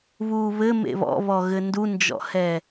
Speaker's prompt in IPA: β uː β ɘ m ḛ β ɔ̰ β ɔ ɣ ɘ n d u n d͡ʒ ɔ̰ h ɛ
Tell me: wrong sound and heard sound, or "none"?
none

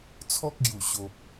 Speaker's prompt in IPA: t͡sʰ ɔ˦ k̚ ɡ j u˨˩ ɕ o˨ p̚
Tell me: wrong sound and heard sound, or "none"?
none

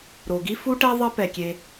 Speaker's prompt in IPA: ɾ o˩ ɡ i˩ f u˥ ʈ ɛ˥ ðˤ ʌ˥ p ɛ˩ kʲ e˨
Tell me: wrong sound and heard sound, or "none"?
i˩ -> i˥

